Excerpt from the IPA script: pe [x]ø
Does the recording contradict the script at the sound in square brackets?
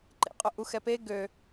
yes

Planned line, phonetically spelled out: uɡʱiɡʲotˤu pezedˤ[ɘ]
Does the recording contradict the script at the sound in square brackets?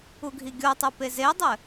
no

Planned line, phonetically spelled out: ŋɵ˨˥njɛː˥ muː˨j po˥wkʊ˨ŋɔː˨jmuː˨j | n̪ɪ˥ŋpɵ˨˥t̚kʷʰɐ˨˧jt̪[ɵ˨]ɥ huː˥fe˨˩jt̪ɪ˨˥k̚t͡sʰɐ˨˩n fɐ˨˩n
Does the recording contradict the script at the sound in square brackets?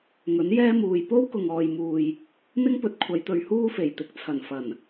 no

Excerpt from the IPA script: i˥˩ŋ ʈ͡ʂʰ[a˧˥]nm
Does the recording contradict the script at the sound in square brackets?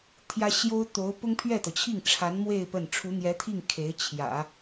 no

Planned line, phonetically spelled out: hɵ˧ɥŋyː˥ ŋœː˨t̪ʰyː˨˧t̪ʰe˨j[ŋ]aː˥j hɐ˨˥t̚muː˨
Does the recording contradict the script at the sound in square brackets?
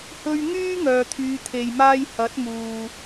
yes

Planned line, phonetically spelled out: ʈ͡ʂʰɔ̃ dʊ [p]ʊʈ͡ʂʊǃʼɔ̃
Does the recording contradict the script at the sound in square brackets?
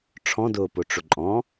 no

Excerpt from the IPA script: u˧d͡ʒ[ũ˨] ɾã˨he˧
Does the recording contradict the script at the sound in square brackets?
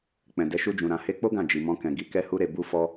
no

